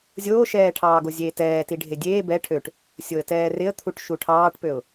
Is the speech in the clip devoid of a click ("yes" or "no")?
yes